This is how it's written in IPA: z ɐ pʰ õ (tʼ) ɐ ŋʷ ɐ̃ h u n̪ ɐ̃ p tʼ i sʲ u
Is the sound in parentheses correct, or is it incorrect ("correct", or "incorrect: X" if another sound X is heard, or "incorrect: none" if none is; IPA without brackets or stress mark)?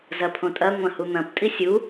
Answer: correct